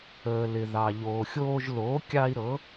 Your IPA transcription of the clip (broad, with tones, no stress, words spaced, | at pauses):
əː˩lɪ˩ðɑ˩ ʎoː˩xʲoː˧ʒloː˩˥ kʲɑ˧i̯ ɾɤ˩˥